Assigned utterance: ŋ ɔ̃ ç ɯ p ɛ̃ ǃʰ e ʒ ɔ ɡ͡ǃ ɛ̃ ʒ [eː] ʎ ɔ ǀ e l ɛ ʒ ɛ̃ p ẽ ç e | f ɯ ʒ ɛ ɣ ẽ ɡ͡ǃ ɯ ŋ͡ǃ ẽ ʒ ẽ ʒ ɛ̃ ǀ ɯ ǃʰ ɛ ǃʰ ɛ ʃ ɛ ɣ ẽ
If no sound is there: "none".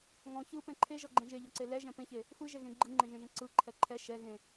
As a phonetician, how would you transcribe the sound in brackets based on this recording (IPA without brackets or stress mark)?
e